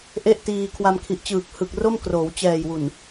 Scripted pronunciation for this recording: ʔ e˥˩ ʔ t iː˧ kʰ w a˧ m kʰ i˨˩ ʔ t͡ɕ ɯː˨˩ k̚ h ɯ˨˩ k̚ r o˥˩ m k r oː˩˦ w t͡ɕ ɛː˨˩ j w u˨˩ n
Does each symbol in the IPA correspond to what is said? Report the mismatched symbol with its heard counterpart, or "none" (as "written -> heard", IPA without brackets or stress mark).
none